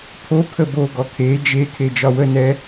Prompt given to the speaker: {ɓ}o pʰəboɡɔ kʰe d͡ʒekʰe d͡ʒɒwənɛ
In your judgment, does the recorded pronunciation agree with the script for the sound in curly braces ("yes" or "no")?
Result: no